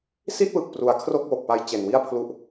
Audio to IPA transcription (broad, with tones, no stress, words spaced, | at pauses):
si˥˩t̚wɯ˨˩k̚pru˩˦a̯ kʰro˥˩k̚wo˨˩k̚pa˧j t͡ɕe˨˩nwi˥˩a̯pʰlu˥˩ʔ